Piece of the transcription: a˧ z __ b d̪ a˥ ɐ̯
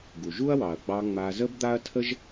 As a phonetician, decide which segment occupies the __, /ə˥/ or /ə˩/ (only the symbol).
ə˥